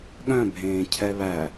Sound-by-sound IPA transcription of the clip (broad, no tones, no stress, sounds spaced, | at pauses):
ɠ œ̃ bʱ ẽː cʰ ɛ β æ